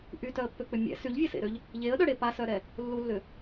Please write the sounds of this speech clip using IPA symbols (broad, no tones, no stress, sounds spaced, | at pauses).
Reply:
ʔ y t œ ə̯ pː ø k͡p ʏ mʲ ɛ̰ s y ʎ vʲ e s ḛ ɾ ø ʎ | ʎ e ə̯ ɗ œ ɽ e p a s œ ɾ ɛ | lː u lː ʏ